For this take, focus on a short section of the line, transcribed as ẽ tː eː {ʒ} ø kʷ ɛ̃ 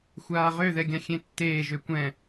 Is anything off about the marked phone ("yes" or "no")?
no